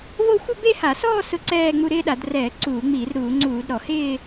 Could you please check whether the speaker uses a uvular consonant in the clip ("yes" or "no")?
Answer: no